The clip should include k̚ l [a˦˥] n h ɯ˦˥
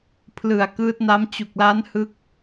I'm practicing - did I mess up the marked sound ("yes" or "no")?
no